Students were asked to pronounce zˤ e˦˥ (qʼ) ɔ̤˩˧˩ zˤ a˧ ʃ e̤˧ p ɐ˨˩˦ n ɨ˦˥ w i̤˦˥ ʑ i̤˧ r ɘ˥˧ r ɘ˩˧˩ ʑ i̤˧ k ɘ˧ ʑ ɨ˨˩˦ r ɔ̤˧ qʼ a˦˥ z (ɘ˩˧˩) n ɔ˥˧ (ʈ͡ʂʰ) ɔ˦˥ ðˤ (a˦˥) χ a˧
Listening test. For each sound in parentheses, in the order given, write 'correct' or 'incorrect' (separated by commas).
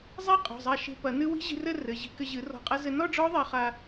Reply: correct, incorrect, incorrect, incorrect